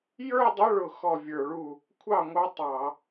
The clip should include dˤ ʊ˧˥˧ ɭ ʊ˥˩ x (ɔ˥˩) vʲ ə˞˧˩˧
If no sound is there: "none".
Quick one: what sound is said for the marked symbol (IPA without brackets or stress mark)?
ɔ˥˩